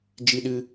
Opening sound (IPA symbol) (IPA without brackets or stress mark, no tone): d͡ʒ